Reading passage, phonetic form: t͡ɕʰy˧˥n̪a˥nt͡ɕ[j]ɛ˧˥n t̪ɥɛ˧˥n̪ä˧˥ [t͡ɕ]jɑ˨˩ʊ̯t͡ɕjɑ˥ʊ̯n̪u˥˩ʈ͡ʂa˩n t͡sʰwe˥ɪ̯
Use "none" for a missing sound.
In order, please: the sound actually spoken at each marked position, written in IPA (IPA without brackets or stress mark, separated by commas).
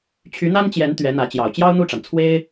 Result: j, t͡ɕ